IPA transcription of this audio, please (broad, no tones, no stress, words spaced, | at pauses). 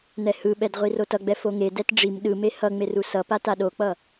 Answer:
n̪ɛhɯɓɛd ʁʷirotʌɡ͡bɛ foŋedɛt ɖ͡ʐim ɗɯme hʌ ŋ͡merusʌpa taɗok͡pʌ